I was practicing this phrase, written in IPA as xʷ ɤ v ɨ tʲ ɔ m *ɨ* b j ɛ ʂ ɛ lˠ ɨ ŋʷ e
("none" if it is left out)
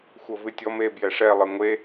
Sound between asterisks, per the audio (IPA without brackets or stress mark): e